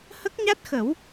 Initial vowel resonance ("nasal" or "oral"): oral